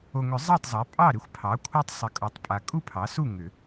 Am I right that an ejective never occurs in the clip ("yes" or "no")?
no